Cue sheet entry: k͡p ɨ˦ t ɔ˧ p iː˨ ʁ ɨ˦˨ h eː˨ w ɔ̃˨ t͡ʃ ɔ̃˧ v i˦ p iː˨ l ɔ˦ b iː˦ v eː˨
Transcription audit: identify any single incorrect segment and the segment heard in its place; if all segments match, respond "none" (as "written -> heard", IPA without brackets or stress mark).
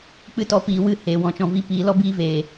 ʁ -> w